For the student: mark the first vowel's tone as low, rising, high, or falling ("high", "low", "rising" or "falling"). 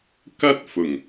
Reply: high